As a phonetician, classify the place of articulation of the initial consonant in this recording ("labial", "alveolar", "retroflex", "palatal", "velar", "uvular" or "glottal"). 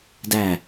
alveolar